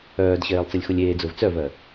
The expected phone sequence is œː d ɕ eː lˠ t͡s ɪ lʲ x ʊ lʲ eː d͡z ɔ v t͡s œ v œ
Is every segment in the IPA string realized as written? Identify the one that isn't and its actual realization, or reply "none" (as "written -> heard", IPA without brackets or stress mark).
ɔ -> ʊ